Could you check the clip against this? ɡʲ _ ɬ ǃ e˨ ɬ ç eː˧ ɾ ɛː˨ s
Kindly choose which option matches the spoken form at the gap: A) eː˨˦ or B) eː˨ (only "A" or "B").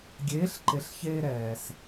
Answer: A